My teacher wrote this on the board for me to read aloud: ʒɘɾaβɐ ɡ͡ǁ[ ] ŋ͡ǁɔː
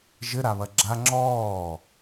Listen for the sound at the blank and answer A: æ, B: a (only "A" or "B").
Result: B